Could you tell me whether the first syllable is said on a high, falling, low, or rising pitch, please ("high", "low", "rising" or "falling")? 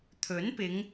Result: rising